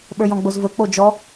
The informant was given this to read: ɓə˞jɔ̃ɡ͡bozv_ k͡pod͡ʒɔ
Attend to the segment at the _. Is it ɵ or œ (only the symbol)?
ɵ